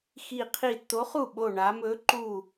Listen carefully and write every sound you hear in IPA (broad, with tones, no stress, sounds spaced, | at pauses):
x i˧˩ qʰ i˧˩ tː o˨˥ χ u˥˩ ɓ o˧˩ ɳ a˩˧ m ɵ˨˥ ǃ u˧˩